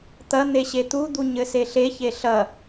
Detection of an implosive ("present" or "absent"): absent